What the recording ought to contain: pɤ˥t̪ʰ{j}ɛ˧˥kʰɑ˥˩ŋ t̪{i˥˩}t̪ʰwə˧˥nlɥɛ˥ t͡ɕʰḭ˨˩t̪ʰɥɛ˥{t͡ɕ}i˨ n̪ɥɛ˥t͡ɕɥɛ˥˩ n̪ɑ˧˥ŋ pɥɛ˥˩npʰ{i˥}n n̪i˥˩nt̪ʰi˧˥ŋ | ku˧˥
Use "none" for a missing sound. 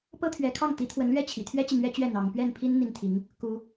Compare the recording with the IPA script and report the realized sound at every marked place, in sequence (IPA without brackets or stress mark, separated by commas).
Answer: ɥ, i˧˥, t͡ɕ, i˥